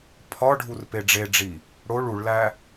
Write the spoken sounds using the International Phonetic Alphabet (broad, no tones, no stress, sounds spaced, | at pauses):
pʰ ɒ ɖʱ u r p e ɖ͡ʐ e ɖ͡ʐ i | ɽ o ɭ u ɭ l æ